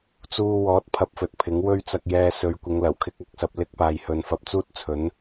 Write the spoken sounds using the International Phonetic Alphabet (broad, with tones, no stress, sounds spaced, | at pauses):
t͡s uː˧ w ɔː˨˥ t̚ pʰ ɐ˨ p̚ f ɵ˨ t̚ pʰ ɪ˨˥ ŋ w ɵ˥ ɥ t͡s ɐ˧ k̚ j ɛː˧ s ɵ˨˧ ɥ kʷ ɪ˨˧ ŋ l ɐ˨˩ w kʰ ɪ˧ k̚ ɐ˨ k̚ s ɐ˨ p̚ l ɪ˥ k̚ p aː˨ j h ɵ˨ n f ɐ˧ p̚ t͡s uː˥ t̚ t͡sʰ ɵ˨˥ n